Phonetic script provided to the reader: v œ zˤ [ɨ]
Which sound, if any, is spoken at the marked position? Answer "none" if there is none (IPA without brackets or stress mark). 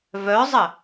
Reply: ə